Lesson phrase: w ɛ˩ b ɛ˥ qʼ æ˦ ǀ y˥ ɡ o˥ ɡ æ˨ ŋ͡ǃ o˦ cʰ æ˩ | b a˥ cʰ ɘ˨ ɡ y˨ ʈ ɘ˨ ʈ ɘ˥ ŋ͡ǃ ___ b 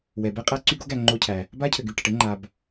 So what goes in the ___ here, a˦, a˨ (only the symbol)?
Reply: a˨